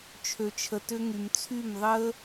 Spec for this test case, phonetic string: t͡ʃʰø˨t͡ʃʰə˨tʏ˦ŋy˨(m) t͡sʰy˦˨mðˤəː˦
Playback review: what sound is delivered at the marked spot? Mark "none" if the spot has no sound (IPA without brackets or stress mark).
m